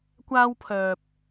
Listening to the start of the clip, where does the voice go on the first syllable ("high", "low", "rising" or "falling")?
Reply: high